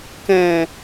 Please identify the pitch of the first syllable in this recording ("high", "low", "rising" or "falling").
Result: low